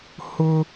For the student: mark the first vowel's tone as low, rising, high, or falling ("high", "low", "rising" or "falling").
high